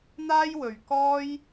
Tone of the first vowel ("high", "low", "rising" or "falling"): high